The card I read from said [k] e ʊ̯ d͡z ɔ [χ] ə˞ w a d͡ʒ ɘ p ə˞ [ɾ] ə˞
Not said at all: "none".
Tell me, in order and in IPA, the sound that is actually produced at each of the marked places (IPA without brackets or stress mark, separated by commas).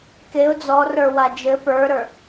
k, r, ɾ